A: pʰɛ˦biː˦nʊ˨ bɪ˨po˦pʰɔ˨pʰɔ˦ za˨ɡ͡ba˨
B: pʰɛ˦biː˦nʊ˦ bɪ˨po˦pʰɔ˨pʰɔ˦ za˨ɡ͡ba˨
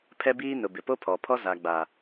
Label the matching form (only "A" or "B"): A